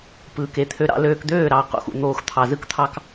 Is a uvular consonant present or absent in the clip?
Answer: present